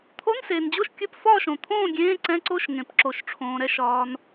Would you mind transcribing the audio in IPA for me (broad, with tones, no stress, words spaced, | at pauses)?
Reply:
t̪ʰo˧˥˧nseː˩nd͡ʑo˥˨ʃ kʲɵ˧˥˧pfɒː˥˨ʃõ˩t̪ʰõː˥˨ ɡʲẽː˧˥˧ǀɛ̃˧˥˧ǀo˥˨ʃ ŋẽ˩pǁo˩ʃʈ͡ʂʰõː˩ɾɛ˥˨ʃ ɒː˩n